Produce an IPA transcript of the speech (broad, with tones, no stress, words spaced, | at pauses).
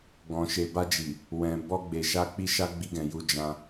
ɡɔ̃˨ʃe˨ba˧d͡ʒi˨ | wɛ̃˨ bɔ˧ɡ͡be˨ʃa˧k͡pi˧ ʃa˦ɡ͡bi˧ɡɛ̃˨ju˧ d͡ʒã˧